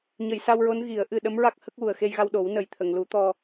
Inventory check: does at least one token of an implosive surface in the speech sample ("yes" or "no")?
yes